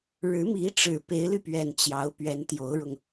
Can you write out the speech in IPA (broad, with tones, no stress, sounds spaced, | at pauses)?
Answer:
ɻ ɻ̩˧˥ m i˧˥ ʈ͡ʂ ɻ̩˨˩ p e˧˥ ɪ̯ l y˧ p ɥ ɛ˨˩ n t͡ɕ j ɑ˧˥ ʊ̯ p ɥ ɛ˧˥ n t̪ j o˧˥ ʊ̯ ɻ ʊ˧ ŋ